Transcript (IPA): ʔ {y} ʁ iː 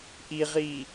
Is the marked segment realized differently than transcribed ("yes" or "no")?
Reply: yes